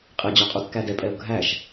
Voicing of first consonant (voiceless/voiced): voiceless